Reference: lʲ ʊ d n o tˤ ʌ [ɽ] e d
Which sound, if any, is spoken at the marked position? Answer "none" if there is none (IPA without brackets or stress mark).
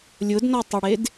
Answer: ɽ